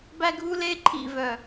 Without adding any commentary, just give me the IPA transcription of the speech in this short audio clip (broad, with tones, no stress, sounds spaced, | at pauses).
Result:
b æ˦ ɡʱ u˦ l e˦ ǃʰ ḭ˨ v œ˨